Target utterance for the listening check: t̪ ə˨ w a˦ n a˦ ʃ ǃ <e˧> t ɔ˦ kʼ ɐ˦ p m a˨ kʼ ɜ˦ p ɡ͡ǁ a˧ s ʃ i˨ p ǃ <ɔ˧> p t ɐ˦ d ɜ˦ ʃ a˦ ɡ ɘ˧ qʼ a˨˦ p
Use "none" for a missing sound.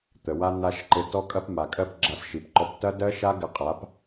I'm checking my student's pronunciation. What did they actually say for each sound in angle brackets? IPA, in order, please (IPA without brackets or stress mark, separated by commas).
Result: ɘ˧, ɔ˧